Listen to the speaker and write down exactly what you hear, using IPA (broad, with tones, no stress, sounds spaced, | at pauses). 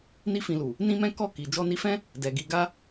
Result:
n i˦ f ĩ˧ l u˨ | n ĩ˦ m ɛ̃˦ k ɔ˦˨ k i˨ d͡ʒ ɔ˧ n i˧ f ɛ̃˦ | d ɛ˨ ɡ i˧ ɡ a˦